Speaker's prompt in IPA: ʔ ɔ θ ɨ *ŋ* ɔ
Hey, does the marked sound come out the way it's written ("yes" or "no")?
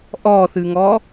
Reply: yes